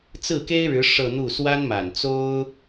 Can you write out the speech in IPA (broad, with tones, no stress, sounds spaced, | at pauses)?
t͡s ɹ̩˥˩ k e˥ ɪ̯ ɻ ɻ̩˧˥ ʂ ɤ˥˧ n̪ u˥˩ s w a˥ n m a˨˩ n t͡s o˥ ʊ̯